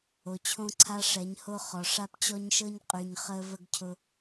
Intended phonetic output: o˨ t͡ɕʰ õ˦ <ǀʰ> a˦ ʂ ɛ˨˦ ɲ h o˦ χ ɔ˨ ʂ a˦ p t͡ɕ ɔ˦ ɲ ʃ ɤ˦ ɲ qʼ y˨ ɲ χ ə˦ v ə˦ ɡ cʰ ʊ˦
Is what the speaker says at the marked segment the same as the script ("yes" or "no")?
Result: yes